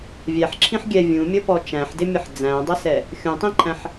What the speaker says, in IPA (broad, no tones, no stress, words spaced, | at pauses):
vʲæħǁʰĩħ ɡʲɛ vʲũmʲʌpɔ t͡ʃæ̃ħdɪmʲʌħ d͡zæ̃dˤəsɛ | xʲũtˤĩǃʰæ̃ħ